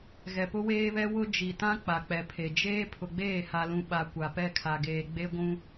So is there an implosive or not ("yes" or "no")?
yes